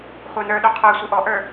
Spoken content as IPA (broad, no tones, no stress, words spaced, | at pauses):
χʷə˞nə˞ɗu qʰə˞ sʷiʔɔʔə˞